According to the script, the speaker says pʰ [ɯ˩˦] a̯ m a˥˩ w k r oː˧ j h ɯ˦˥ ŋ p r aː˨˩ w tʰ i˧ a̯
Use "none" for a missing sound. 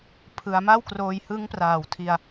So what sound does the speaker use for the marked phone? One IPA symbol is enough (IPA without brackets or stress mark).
ɯ˩˦